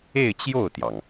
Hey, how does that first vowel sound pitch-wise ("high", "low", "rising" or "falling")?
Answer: falling